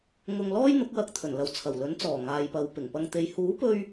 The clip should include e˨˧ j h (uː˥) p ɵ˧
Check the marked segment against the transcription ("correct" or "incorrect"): incorrect